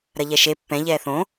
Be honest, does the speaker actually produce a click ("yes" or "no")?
no